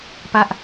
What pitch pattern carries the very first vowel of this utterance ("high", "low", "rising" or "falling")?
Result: high